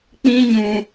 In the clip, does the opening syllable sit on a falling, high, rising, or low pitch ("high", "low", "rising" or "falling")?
high